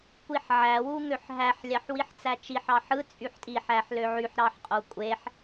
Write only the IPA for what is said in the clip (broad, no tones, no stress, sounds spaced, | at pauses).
kʷ i ħ ʕ æ w u ŋ ø ħ ɦ æ ħ lʲ ɑ ħ w i ħ t͡s æ t͡ʃ i ħ ɑ ħ ɯ t͡sʼ y ħ tʼ i ħ æ ħ l ø ʕ y ħ ɾ ɑ ħ qʼ o kʷʼ e ħ